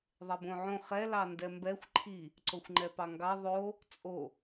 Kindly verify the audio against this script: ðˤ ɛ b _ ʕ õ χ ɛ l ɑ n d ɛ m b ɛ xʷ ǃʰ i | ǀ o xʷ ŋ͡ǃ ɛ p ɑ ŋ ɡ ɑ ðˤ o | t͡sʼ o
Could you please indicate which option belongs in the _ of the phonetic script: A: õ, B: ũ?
A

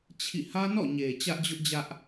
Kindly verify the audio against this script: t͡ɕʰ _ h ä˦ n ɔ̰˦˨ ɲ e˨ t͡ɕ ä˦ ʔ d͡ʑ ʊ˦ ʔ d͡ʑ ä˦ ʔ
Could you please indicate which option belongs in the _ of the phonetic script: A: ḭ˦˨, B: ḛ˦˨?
A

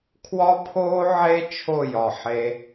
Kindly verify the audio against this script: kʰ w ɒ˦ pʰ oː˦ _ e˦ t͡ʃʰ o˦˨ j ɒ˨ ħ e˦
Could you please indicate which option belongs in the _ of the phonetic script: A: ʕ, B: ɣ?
A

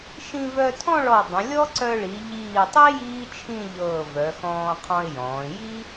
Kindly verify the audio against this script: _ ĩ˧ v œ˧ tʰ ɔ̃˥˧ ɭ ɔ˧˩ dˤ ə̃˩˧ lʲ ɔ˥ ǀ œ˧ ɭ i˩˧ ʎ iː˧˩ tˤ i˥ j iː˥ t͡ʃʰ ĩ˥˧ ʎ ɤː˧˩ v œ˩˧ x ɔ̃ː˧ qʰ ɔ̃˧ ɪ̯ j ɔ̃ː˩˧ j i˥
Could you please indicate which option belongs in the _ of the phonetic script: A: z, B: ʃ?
B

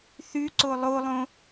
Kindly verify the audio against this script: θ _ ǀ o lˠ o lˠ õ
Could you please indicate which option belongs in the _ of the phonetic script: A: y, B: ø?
A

